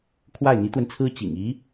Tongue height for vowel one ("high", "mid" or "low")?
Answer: low